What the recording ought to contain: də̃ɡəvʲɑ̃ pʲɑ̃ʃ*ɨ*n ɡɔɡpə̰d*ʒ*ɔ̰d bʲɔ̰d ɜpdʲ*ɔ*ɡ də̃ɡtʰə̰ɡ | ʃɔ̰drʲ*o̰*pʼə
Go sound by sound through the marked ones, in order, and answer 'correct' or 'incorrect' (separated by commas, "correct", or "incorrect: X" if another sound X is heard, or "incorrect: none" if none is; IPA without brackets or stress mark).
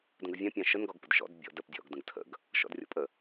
incorrect: ə, incorrect: ʃ, incorrect: ɔ̰, incorrect: ɔ̰